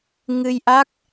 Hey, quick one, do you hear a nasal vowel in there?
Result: no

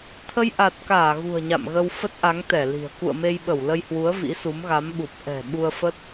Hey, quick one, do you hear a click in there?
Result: no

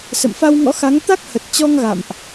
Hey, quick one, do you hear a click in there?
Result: no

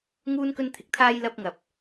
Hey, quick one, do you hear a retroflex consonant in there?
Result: no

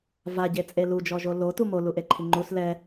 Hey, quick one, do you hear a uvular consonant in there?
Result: no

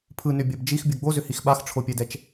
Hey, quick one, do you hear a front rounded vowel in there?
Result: yes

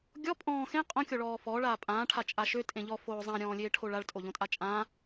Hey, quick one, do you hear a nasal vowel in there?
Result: yes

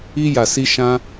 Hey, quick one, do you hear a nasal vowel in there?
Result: yes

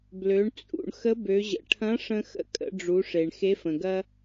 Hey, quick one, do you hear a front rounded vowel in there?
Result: yes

